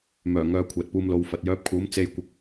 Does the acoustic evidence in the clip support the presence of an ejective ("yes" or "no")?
no